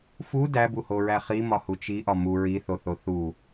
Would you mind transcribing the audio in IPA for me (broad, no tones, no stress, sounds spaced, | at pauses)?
f u d æ b u h o ɹ æ χ i m ɒ h u t͡ʃ i ʔ ɒ m u ɹ i θ o θ o θ u